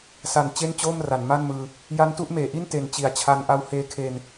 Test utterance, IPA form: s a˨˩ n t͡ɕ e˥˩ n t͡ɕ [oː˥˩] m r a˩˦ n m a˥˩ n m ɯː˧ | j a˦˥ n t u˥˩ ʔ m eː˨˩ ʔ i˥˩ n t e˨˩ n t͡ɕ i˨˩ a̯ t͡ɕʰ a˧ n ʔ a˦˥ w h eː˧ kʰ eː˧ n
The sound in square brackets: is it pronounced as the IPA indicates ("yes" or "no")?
yes